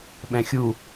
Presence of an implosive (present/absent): present